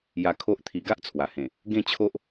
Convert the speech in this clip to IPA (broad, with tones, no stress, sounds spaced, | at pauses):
j a˧ kʰ o˦ ʔ t̪ʰ i˧ ɡ a˦ ʔ t͡sʰ w a˨˩ h ẽ˨˩ | ɡ ẽ˥˧ t͡ɕʰ o˦ ʔ